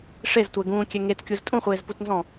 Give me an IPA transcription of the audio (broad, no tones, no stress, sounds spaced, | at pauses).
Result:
ʂ e z tʷ ɛ ɡ ũː kʲ ɛ ŋ e t kʲ u z tʼ ũ χʷ eː z p u t n z ɔ̃